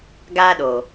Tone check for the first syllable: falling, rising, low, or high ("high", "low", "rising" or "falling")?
high